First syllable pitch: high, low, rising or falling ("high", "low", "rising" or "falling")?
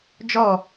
falling